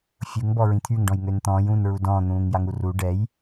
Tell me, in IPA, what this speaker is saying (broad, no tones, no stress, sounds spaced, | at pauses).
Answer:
fʲ u ŋ b ɔ ɹ ĩ t̪ʰ y ŋ ɖ ɔ̃ j ŋ ø n t̪ ɔ̃ː j ũː n ɹ u d ɔ̃ː n̪ ũː ŋ j a ŋ u r u ɖ ɛ j